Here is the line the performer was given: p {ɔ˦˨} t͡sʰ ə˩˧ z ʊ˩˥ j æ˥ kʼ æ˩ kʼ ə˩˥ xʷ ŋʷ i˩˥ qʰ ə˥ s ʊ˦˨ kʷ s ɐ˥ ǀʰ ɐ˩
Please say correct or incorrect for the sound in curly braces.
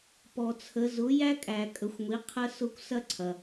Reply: incorrect